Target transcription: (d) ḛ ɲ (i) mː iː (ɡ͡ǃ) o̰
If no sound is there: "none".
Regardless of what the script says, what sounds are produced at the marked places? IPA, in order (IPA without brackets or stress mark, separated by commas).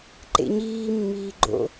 ǃ, iː, ɡ͡ǃ